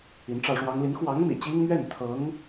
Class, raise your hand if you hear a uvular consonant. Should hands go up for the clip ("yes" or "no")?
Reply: no